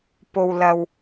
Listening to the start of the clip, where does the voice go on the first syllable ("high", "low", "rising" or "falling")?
low